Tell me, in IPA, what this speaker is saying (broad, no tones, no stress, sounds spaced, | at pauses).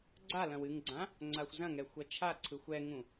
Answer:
ɡ͡ǀ a l ɐ̃ w ɨ ŋ ɡ͡ǀ ã | ŋ͡ǀ a xʷ z ɐ̃ ŋ ɛ xʷ ɐ t͡ʃʰ a ǀʰ ɯ xʷ ɛ ŋ ũ